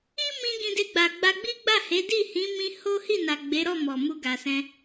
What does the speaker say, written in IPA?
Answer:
i˦ m ĩ˧ ɡ ĩ˧ d e˧ ɡ͡b a˨ ɡ͡b a˧ ɡ͡b i˦ ɡ͡b a˦˨ h e˨˦ d i˦˨ h ĩ˨˦ m ĩ˧ h o˦ h i˦˨ n a˨ ɡ͡b e˨˦ ɾ ɔ˦˨ m ɔ˨ m u˧ ɡ a˨ s ɛ̃˧

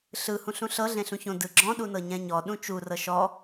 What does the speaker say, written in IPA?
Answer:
ɬ ɯ h ũ ɬ ũ ɬ ɤ ɮ ẽ ɬ ũ ç õ d ɯ ɡ͡ǁ ɔ̃ ɗ u n ɤ ɲ ɛ̃ ɲ ɔ ɗ ũ t͡ʃ u r ɤ ʃ ɔ

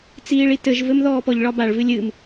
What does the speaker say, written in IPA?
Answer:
t͡s iː ɭ i t ɘ ʒ v ɘ m ð ɔː p ɔ ʎ ɭ ɒ b a ɭ v ɨ lʲ ɨ m

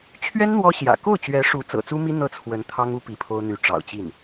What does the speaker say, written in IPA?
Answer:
t͡ɕʰ ɥ ɛ˥ n n̪ w ɔ˥ ɕ j ä̰˨˩ k o˥˩ ʊ̯ t͡ɕ ɥ ɛ˧˥ ʂ u˧˥ t͡s ɤ̰˨˩ t͡s u˥ m i˥ n̪ ɤ˥˩ t͡sʰ w ə˧˥ n t̪ʰ ɑ˥ ŋ u˥ p i˧˥ pʰ o˥ ʊ̯ n̪ y˧˥ ʈ͡ʂ ɑ̰˨˩ ʊ̯ t͡ɕ i˥˩ n

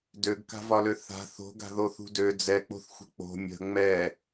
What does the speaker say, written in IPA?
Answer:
d ø ɡ k a̤ v ɒ l ø θ a̤ θ o̤ ɡ a̤ ð o θ ṳ d ø d͡z ɛ k͡p o̤ θ xʷ ə̤ k͡p o̤ mʲ ə̤ ŋ͡m ɛ

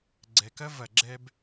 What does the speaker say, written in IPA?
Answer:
ɡ͡ǀ ɛ˨ k ɐ˦ v ɐ˨ ɡ͡ǁ ɛ˧ b

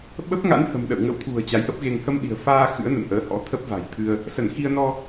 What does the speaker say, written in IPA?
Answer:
ɓ ə˦˥ p̚ ŋ a̰˧˥ n h ə̤˨˩ m ɗ ə̰˧˨ w ŋ ə̰˧˥ w t̪ʰ ṳ˨˩ ə̯ t͡ɕ a˨˦ j ʔ ə˦˥ p̚ ɣ e˧ ŋ h ə˧ m ɗ i̤˨˩ ə̯ f aː˧ x ɨ̰˧˥ ə̯ n ə̰˧˨ n ʔ əː˨˦ h ɔ̰˧˥ t̪ʰ ə˦˥ p̚ v a̤˨˩ j t̪ʰ ɨ˧ ə̯ | s ə˧˩ n x i˧ ə̯ n ɔ˧

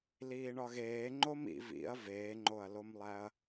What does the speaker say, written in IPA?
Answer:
l iː ɳ ɒ ɣ eː ŋ͡ǃ o m ḭ v ḭ ɐ̯ v eː ŋ͡ǃ o ɐ̯ l o m lˠ æ ɐ̯

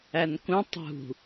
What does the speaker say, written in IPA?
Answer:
æ n k ũ tˤ ṳ

